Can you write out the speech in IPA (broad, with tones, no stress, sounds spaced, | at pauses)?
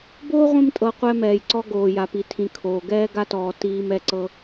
b o˥ ʁʷ ĩ˥ m tʼ ɤ˧ qʷ ɛ˧ m ɛː˩ j ǀ ɔ˧ ɡ oː˩ j a˩ p i˩ tʰ ĩ˩ kʰ oː˩ ɡ ɛː˧ ɡ a˧ t ɔː˩ t iː˧ m ɛ˧ ǀ ɤ˧